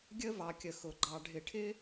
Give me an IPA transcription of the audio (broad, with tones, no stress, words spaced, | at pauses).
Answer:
ɡʲə˥ vɑ˧kʲə˧ xʊ˧ɡ͡ǃɑ˧ ɖʱɪ˧ʈʰɪ˥